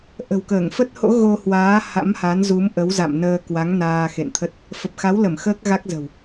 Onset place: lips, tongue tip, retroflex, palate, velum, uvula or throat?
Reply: throat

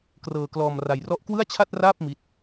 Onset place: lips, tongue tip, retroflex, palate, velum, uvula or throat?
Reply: velum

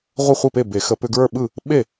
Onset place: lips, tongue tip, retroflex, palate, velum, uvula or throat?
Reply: uvula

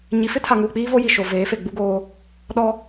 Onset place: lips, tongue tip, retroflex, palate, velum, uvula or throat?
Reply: palate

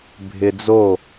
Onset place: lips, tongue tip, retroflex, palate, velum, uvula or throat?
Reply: lips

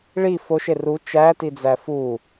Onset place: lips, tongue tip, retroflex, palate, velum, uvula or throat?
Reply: retroflex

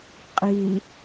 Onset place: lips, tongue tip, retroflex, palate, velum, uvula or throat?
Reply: uvula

